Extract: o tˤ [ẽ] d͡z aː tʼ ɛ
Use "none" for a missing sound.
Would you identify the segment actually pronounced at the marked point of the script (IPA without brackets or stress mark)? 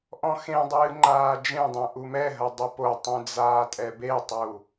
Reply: ẽ